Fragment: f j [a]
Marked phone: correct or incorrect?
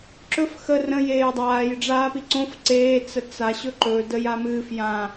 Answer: incorrect